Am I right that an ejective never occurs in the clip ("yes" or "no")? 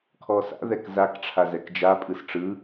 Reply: no